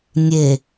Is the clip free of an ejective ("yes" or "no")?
yes